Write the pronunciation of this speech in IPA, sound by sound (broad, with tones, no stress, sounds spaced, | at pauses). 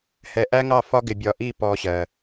h ɛ˨ ʔ æ˦ ŋ ɑ˦˨ f ɒ˦ ɡ ɪ˨ bʲ ɒ˨ ʔ i˦˨ p ɔ˦ ɕ ɜ˨